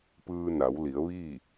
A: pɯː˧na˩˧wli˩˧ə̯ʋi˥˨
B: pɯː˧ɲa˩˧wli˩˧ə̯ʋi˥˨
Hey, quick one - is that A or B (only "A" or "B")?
A